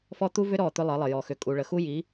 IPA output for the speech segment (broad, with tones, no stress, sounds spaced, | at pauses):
f ɔ˦ t̪ u˦ v ʏ˦ ɾ ɔ˦˨ t̪ ʏ˦ lˠ ə˨˦ lˠ ə˨ j ɔ˨ x ʏ˨ kʼ u˨ ɭ ə˨ x u˦ j i˨˦